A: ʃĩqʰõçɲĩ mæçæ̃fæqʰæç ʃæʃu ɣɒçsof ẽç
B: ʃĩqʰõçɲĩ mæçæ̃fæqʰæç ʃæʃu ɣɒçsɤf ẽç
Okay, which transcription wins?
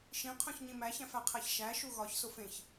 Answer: A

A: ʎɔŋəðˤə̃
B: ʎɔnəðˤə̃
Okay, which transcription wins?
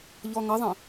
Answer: A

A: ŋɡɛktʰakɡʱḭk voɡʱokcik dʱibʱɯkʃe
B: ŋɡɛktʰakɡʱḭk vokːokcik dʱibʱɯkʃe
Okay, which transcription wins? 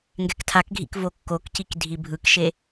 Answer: B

